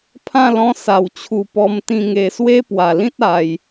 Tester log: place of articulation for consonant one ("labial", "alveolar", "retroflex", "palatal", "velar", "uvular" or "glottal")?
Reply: labial